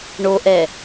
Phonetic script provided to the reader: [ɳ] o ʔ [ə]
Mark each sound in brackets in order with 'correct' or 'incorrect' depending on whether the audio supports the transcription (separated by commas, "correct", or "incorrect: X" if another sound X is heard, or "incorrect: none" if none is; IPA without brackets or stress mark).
correct, incorrect: ɛ